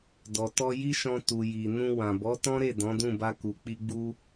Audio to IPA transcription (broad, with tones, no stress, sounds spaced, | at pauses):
d ɔ˨ t ɔ˧ j i˦ ʃ ɔ̃˧ t u˨ j i˨ n ũ˧ w ã˨ b ɔ˨˦ t ɔ̃˦ ɾ e˦˨ d ɔ̃˨˦ d ũ˦˨ b a˧ k u˨ k͡p i˧ ɡ͡b u˧